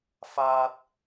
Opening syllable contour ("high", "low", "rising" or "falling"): high